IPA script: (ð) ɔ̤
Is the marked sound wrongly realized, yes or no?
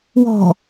yes